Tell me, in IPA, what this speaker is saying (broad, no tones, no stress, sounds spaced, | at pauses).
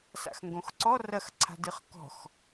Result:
s a̰ x ŋ ɡ õ x ǀ ɔ r ɐ x ǀʰ a̤ d ɨ χ k ɔ̤ x